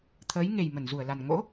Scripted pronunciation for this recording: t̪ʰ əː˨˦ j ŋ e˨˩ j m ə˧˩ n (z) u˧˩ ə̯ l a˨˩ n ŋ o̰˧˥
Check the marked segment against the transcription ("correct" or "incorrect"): correct